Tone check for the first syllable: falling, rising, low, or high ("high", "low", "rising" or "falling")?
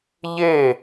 falling